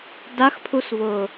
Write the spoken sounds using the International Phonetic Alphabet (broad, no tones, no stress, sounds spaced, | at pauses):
d a x pʰ u s v ʊː